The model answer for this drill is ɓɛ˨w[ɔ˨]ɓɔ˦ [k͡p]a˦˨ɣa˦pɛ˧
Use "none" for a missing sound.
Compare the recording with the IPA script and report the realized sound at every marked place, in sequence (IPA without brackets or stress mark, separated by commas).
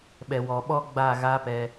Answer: ɔ˨, ɡ͡b